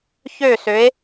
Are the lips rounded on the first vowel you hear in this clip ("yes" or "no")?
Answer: yes